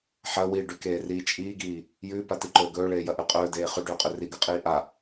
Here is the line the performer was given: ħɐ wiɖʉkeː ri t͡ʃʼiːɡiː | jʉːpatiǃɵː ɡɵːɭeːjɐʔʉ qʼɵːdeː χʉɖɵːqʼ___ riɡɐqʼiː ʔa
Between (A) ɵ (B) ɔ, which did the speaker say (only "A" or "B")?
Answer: A